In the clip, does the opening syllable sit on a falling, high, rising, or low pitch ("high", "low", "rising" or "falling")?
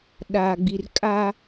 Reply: low